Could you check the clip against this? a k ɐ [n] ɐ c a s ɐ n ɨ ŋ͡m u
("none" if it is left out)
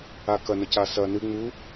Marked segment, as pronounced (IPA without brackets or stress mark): n